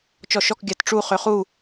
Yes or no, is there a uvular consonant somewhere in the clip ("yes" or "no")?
yes